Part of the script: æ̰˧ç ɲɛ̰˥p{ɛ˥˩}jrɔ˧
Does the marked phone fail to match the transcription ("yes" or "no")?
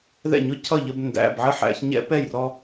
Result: no